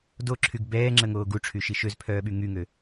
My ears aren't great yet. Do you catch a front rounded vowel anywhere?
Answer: yes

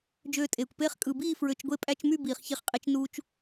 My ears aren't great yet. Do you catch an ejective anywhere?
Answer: yes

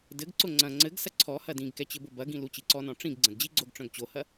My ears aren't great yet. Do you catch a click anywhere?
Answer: yes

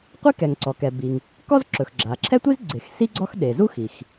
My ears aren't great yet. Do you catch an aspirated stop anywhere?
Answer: yes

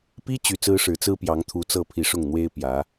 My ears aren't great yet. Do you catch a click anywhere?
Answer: no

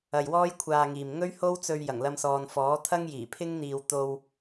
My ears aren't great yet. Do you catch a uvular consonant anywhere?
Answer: no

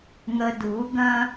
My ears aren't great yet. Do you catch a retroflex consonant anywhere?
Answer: no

